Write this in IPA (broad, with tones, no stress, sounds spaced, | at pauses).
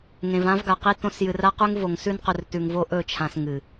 ŋ ẽ˨ v ã˦ v ɡ a˨ q i˦ t õ˦ s j ɨ˨ r a˦ q ʉ˦ ŋ v o˨ ŋ s ʉ˦ n q ɵ˨ r t ʉ˨ ŋ v o˦ ʔ ɵ˦˨ t͡ʃʰ ã˨ s ŋ ɨ˨